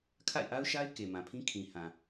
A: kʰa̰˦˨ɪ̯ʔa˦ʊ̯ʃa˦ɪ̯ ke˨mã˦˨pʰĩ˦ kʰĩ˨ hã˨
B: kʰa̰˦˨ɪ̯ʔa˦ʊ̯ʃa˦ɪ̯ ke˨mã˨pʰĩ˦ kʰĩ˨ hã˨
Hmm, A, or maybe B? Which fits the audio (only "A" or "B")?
B